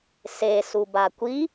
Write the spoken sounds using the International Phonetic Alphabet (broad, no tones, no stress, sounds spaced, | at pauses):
s e s u b a kʷ i